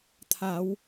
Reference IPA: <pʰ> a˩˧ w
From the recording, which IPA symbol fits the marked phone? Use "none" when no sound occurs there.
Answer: t̪ʰ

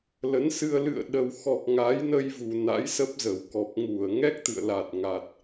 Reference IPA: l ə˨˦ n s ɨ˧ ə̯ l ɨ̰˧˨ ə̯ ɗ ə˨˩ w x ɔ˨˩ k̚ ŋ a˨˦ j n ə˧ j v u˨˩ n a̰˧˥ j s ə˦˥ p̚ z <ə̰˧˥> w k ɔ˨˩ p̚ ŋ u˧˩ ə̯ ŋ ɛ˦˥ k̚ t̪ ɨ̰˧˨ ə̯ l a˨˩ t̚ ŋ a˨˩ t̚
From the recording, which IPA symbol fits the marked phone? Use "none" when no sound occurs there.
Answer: ə˧˩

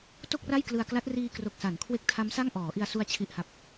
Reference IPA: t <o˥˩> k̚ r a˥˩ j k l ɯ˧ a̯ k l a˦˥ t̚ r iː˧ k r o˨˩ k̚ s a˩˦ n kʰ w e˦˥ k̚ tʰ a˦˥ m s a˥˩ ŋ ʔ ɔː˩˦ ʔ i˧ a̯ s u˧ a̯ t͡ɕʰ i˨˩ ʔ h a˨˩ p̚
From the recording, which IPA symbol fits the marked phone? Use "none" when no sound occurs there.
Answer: o˥˩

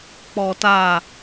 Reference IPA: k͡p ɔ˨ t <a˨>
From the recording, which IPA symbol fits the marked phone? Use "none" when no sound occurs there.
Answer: a˨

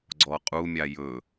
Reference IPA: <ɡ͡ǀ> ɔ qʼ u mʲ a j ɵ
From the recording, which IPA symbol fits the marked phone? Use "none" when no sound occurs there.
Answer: ɡ͡ǀ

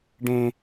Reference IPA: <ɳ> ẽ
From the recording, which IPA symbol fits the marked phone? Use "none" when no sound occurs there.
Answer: ɖ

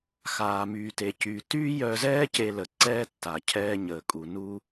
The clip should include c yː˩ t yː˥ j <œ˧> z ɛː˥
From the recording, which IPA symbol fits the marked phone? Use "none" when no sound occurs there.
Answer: œ˧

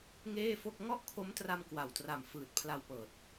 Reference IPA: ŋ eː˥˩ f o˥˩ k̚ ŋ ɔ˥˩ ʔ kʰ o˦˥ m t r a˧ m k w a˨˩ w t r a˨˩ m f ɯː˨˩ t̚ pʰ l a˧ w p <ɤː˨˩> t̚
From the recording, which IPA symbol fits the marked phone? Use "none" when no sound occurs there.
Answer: ɤː˨˩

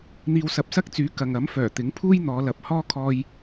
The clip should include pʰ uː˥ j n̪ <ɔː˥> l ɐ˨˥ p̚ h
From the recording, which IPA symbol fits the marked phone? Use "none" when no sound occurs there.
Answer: ɔː˨˧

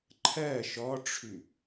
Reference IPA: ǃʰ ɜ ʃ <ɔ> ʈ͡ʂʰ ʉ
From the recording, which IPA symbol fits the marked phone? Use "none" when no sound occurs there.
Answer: ɔ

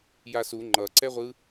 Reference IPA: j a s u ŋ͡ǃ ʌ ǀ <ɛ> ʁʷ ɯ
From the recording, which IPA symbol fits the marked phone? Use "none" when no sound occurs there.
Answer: ɛ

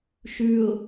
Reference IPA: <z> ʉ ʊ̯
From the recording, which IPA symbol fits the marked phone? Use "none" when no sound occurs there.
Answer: ʃ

